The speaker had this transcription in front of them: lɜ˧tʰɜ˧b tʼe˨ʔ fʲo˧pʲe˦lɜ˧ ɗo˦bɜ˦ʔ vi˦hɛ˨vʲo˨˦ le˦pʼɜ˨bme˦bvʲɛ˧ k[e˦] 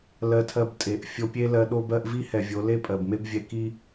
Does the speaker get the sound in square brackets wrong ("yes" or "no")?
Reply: yes